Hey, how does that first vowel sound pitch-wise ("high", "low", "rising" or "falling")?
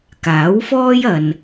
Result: rising